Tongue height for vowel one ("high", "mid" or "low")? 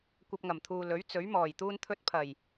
low